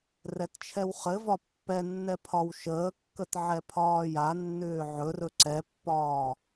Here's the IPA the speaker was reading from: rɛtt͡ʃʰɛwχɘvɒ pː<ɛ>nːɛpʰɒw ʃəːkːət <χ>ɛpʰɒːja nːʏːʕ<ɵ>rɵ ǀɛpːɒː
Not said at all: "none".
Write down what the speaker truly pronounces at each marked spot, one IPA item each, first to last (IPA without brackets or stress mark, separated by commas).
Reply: ɛ, ʕ, ɵ